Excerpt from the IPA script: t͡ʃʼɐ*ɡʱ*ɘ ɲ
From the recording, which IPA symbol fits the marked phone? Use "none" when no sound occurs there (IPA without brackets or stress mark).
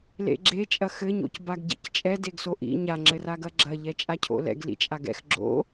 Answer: x